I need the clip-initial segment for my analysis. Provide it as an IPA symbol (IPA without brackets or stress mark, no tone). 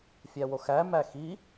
fʲ